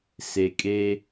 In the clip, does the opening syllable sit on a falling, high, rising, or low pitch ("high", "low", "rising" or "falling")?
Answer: low